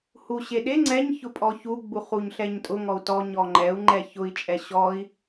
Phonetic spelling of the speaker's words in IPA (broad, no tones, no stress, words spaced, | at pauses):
huɕeɗe ŋ͡ǀɛɲçʊpʼɔ çuɡ͡buχ uɲɬɛɲtʼʊ ŋɔu̯tɔ ɲɔŋ͡ǃɛu̯ ŋ͡ǃɛçʊi̯t͡ʃʼɛ ɕɔi̯